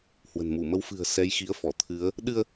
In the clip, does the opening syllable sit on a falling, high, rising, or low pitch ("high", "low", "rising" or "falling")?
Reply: low